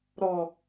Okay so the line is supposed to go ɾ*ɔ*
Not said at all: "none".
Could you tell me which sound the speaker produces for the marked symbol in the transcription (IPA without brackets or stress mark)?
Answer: ɔ